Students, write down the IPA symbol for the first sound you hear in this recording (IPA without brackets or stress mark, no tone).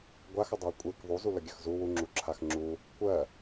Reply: ɡʷ